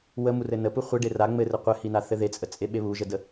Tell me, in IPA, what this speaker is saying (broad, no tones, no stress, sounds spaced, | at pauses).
w ə m u r ɘ n ə p u χʷ ɘ ɖ e r a ŋ͡m ɘ r ɘ qʷ ɘ h i n a θ ɘ ð e t͡sʼ ə t͡sʼ e ɓ e β u ʒ ə d ə